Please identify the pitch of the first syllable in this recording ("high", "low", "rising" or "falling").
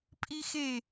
high